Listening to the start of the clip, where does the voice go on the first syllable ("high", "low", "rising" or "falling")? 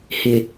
low